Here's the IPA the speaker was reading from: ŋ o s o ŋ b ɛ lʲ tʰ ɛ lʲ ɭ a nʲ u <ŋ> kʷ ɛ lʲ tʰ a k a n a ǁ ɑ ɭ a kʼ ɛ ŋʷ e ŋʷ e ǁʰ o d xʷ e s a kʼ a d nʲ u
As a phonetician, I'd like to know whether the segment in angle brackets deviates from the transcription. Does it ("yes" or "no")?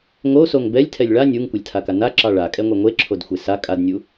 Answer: no